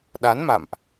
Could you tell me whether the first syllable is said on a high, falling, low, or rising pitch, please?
rising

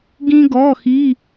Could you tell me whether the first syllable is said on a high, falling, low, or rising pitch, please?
high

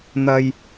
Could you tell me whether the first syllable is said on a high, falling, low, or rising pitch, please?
high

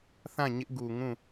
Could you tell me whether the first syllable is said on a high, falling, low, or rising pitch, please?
falling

